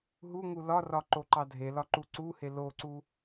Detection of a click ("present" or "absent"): present